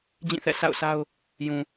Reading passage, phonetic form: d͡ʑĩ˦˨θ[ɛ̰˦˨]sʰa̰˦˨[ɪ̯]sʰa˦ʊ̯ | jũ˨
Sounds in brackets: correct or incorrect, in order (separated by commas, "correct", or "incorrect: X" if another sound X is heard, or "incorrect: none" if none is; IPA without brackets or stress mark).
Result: correct, incorrect: ʊ̯